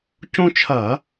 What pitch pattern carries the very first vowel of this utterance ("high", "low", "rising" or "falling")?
high